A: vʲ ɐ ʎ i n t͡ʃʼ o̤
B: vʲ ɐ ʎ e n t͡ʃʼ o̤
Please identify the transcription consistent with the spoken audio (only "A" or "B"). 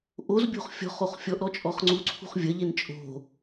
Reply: B